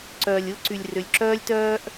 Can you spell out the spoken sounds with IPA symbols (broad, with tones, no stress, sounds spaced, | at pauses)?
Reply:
ǀ œː˨ lʲ ʊː˦ ǀ y˨ lʲ r ʏ˨ lʲ ǁ œː˦ lʲ t œː˦ ʔ